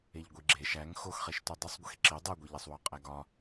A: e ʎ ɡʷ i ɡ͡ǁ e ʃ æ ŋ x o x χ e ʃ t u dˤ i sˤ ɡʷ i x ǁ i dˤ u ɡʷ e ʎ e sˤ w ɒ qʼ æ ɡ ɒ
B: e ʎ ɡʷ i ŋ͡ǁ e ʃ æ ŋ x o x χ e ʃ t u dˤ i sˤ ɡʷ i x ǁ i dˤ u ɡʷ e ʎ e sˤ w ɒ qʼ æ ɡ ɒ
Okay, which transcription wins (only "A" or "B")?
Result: A